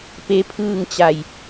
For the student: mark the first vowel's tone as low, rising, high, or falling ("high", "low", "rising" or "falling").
rising